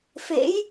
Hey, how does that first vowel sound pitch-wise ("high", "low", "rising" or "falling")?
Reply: rising